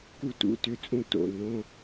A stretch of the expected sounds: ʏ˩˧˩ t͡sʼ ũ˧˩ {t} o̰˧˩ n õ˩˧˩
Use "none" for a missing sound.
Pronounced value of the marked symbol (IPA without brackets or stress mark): t